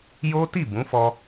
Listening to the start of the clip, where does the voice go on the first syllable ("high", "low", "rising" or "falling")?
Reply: high